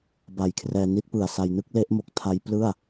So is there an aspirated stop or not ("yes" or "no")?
yes